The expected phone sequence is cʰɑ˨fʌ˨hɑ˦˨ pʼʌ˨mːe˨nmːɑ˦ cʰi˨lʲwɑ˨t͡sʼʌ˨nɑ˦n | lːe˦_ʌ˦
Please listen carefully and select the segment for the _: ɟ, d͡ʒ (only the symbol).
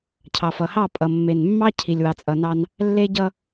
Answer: ɟ